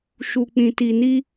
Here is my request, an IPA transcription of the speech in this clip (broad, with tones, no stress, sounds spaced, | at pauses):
ʃ u˧ k͡p ĩ˧ t i˧ n i˦